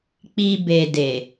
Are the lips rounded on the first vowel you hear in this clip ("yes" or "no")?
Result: no